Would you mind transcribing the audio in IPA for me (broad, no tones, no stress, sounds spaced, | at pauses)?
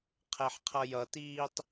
qʰ ɛ ħ qʰ ʌ j ʌ t iː tˤ